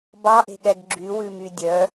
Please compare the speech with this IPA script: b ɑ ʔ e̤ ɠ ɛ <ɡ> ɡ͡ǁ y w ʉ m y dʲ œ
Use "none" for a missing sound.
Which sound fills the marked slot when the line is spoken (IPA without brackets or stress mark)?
ɡ